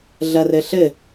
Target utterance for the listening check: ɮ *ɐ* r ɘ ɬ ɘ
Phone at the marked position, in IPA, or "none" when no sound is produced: ɐ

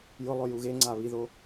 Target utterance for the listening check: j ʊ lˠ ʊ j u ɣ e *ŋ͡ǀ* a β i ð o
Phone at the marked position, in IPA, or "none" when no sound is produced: ŋ͡ǀ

